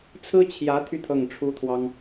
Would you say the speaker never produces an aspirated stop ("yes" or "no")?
no